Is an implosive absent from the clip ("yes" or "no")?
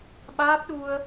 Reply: no